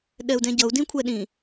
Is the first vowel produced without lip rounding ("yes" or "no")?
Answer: yes